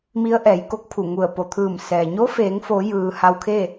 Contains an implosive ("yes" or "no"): no